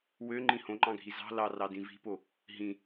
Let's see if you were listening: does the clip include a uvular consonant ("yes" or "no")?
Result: no